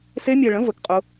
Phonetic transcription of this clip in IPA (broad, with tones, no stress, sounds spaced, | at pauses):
s e˦˥ mʲ ɛ˧ ɭ ə̃˨˥ v ə˨˥ k qʼ ʊ˦˥